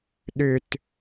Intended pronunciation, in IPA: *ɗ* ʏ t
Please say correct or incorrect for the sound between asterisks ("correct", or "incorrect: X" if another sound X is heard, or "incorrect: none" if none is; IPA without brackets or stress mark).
correct